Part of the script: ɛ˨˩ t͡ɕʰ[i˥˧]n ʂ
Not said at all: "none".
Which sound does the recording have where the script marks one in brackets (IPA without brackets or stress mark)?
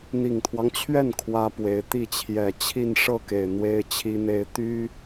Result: i˥˧